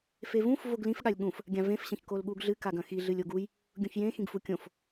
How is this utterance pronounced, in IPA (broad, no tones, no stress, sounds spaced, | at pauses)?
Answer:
f e v ũ f v o ɡ l ĩ f ɠ a lʲ ɠ ũ f | ɡʲ ã v ẽ f ɕ ɐ̃ ç k o l ɠ uː ɡ ɮ ɨ k a ɡ ɐ̃ x i ɮ ɨ lʲ o ɡ u j | ɡʲ õ ç j ẽ x ĩ ɡ f u kʲ õ f